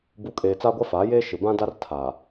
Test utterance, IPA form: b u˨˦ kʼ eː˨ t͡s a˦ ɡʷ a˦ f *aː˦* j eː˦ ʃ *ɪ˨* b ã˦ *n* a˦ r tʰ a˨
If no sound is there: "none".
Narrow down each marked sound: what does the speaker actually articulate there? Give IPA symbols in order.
aː˨˦, ɪ˨, d

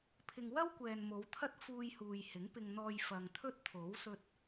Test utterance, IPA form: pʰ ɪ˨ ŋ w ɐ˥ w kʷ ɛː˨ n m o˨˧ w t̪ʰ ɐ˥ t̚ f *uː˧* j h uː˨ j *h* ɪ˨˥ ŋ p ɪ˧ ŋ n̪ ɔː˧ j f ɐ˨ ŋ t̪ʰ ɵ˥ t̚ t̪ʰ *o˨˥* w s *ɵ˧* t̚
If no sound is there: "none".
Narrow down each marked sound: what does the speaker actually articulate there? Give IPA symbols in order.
uː˧, h, o˨˥, ɵ˧

